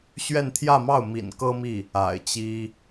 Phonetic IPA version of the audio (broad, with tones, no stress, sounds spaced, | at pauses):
ɕ ɥ ɛ˥˧ n t̪ʰ j ä˥˧ m ɑ˥˩ ʊ̯ m ḭ˨˩ n k ɤ˥ m i˥˩ | a̰˨˩ ɪ̯ t͡ɕ i˥